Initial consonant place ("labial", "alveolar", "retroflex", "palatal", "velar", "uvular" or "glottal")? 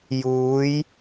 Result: palatal